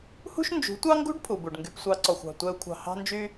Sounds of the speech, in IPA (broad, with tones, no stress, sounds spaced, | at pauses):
h ṳ˦ ʃ n d͡ʒ ṳ˨˦ tʷ ɑ˦ ŋ ɡ ṳ˦ ɖ pʰ u˨ b u˨ ɖ ŋ ɡ y˧ p sʷ ɑ˧ ǀ ɔ˨ xʷ ɑ̤˨ tʷ ɛ˧ u̯ kʷʰ ɑ̤˨ h ɑ̤˧ n d͡ʒ y˧